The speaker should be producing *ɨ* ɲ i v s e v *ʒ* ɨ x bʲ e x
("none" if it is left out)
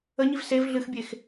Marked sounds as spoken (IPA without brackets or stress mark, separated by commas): ə, ɮ